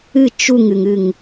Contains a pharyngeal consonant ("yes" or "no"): no